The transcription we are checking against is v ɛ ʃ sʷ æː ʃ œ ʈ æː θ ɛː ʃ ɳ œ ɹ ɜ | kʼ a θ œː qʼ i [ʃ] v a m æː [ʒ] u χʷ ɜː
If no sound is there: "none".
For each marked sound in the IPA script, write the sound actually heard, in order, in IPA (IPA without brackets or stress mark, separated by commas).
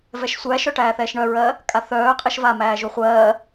ʃ, ʒ